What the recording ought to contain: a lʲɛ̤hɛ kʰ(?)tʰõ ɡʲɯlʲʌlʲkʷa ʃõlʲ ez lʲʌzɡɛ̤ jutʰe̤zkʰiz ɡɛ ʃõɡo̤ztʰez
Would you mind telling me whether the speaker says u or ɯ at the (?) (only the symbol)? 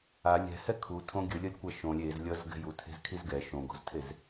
u